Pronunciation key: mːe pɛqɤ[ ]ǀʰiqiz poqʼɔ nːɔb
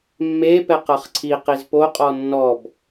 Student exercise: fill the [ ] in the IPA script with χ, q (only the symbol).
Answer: χ